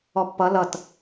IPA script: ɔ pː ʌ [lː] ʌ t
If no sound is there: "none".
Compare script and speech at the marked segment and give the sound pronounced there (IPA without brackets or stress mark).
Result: l